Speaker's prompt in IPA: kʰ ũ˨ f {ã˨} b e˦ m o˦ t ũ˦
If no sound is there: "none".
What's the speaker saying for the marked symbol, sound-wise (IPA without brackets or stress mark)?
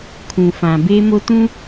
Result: ã˨